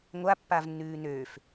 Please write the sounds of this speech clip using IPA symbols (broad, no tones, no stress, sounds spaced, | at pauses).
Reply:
ŋʷ a pː a v nː ʉː n øː f